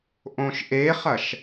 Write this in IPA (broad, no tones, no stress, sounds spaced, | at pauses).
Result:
ʔ õ ʃ ʔ e χ ɐ ʃ